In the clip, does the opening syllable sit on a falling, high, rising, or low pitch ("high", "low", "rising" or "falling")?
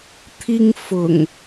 high